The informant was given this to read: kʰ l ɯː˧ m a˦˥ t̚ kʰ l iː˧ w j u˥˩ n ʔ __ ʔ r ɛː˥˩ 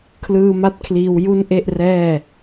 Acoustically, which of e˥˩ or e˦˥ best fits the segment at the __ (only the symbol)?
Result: e˥˩